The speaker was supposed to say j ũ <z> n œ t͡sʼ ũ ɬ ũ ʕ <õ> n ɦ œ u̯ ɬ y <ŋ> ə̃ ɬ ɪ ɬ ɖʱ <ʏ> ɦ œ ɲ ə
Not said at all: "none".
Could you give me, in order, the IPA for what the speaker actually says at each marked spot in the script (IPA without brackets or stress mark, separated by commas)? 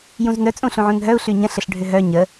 z, ũ, ɲ, ʏ